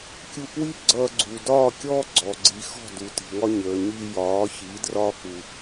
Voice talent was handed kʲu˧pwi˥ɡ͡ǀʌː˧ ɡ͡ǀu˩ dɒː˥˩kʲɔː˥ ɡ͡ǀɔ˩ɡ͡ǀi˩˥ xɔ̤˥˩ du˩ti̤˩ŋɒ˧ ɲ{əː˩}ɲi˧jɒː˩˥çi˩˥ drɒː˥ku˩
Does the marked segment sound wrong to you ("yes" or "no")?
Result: no